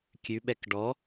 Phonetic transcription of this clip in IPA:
kʲ ʉ ɓ ɛ k ɖ ɔ

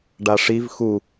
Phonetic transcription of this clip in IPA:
ɖ a ʂ i v x u

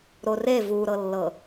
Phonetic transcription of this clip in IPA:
ɾ o r e v u ɾ ɤ lː ɤ

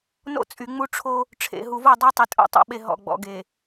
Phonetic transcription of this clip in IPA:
n o̰˦ t͡sʼ y˨ ŋ͡m u˦ ʈ͡ʂʰ o˦ | ʈ͡ʂʰ ḛ˨ ɦ u˨ v o˦˨ dˤ ɛ˦ tˤ i˨ tʼ o̰˦ tˤ o̰˨ ɓ e˨ ɦ ɔ̰˨ ɡ͡b ɔ̰˨ ɡ e˨

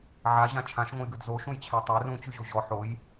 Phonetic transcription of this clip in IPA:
ʕ a ʑ ã t͡ʃʰ ã ʃ ŋʷ ə̃ j ɡ ʉ d z o ʃ ũ j t͡ɕʰ æ tˤ æ r ũ t͡ɕ ʉ ʑ o ʑ ɔ ħ o j

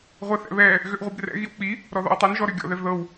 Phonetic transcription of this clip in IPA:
ʁʷ ɛ θ ɛ̰ β ɛ | ɣ ʏ ʔ ʁʷ i b r ɛ̰ ɣ i w k͡p i | ɾ ɔ ð ɔ̰ w tˤ ɛ n ʒ ɔ ɾ ʏ ɡʲ ɔ̰ ð ɛ v ð ɤ w

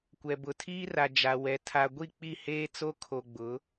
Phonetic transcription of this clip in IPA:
kʷ ɛ˨ b ʊ˨ tʰ iː˦ r a˨ d͡ʒ a˨ w ɛ˨ tʰ a˨ ɡʷ i˦˨ k͡p i˦˨ h eː˦ t͡s o˦ kʰ o˨ ɡ͡b ʊ˨˦

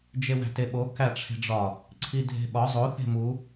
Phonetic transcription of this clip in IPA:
d͡ʒ e w æ̤ t e ɓ o k æ ʈ͡ʂʰ e̤ ɖ͡ʐ ɒ | ǀʰ i dʱ e̤ ɓ ɒ zˤ o θ e̤ m u

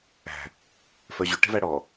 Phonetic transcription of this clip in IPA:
æ̤ | f œ ʑ y ʈ e̤ v æ ɽ ɔ

